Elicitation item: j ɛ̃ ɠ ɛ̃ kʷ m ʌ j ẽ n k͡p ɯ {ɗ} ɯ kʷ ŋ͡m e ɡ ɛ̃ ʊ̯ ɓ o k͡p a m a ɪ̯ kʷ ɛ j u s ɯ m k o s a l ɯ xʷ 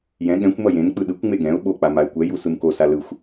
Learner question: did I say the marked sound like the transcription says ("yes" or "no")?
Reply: yes